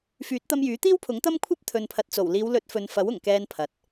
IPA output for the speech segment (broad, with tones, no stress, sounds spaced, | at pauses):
f yː˨˥ t̚ t̪ ɐ˧ m j yː˨˥ t̪ iː˥ w pʰ ʊ˨˥ ŋ t̪ ɐ˥ m kʷʰ ɐ˥ p̚ t̪ʰ ɵ˨ n pʰ ɐ˨ t̚ t͡s o˨˩ w l iː˨˧ w l ɵ˨˥ t̚ f ɵ˨ n f ɐ˨˥ w ʊ˨˩ ŋ k ɛː˧ n pʰ ɐ˨ t̚